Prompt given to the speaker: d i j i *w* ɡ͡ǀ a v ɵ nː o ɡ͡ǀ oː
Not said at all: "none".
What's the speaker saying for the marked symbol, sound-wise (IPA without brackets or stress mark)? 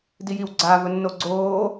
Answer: w